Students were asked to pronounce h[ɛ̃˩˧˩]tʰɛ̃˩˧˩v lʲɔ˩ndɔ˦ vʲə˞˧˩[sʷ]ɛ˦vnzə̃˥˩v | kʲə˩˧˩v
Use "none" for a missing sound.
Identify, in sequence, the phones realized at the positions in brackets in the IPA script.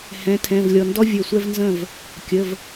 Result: ɛ̃˩˧˩, sʷ

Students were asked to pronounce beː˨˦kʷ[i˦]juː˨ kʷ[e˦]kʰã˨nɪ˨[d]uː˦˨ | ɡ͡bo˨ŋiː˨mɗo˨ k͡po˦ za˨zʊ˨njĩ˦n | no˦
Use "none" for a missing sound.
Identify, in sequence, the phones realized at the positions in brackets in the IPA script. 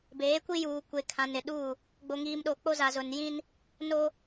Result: i˦, e˨, ɗ

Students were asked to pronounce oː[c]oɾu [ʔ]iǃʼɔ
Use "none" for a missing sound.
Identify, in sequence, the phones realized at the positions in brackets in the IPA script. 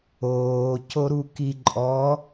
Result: c, k

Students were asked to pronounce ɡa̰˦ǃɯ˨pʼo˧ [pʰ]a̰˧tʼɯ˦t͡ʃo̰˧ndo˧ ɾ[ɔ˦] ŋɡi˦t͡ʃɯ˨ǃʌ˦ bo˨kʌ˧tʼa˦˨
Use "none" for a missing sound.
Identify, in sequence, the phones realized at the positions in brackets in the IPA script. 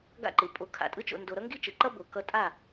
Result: kʰ, ʌ˦

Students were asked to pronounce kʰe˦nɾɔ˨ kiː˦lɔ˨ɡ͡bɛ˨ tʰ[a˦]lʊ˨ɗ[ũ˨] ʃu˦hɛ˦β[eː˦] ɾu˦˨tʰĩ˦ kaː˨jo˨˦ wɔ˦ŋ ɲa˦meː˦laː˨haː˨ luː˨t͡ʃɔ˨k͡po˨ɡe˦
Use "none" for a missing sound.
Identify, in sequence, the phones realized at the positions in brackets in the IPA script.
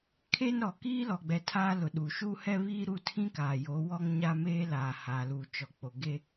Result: aː˦, u˨, iː˦

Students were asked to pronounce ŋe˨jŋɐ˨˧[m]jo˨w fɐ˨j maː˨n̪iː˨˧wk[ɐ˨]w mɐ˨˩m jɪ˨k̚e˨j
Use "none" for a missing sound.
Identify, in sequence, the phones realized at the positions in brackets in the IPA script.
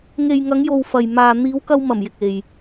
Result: ŋ, ɐ˧

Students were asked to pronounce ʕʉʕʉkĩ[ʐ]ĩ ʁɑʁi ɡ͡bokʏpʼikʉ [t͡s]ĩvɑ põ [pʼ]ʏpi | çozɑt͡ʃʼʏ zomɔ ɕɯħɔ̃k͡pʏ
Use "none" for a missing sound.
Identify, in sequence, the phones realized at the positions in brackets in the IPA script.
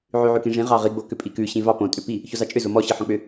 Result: ʐ, ɕ, tʼ

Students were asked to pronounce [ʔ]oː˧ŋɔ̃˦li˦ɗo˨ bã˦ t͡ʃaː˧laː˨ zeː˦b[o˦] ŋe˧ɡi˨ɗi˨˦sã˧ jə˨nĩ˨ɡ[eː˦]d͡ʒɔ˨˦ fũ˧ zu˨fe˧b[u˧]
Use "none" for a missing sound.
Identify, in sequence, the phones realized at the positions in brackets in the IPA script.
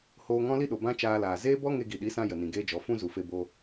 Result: h, ɔ˦, eː˦, o˧

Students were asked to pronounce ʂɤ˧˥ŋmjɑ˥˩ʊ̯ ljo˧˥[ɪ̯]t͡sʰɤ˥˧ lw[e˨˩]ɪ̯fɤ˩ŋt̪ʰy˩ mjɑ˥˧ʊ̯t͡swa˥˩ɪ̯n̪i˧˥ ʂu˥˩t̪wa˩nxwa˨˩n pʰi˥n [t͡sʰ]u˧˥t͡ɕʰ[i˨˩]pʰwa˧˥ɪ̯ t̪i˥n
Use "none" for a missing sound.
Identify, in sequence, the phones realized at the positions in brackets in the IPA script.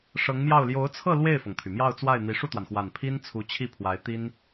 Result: ʊ̯, e˥˩, t͡sʰ, i˥˩

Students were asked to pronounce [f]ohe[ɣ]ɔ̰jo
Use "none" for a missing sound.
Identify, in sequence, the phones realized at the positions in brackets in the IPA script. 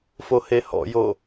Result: f, h

